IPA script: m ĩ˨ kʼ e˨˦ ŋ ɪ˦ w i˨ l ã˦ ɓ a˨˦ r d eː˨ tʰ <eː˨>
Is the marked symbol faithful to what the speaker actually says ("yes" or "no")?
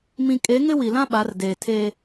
no